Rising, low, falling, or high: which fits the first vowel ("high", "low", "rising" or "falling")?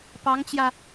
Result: rising